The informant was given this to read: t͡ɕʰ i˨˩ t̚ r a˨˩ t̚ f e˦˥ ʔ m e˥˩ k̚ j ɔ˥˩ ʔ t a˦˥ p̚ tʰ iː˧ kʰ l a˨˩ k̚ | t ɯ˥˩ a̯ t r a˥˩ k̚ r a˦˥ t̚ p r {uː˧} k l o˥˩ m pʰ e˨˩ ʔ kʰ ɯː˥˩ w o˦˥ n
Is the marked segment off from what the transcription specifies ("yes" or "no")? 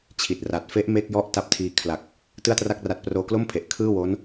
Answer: yes